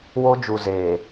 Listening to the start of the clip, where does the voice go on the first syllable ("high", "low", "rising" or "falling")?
high